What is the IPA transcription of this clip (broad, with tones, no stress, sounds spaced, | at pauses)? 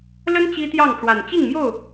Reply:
l ə˦ n t͡ɕ i˦ t̪ j ɑ˥˨ ŋ ʈ͡ʂ w a˨˩ n t͡ɕ i˥˨ ŋ m j o˥˨ ʊ̯